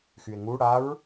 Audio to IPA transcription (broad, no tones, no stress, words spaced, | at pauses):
xye̯ŋu ɽaɹ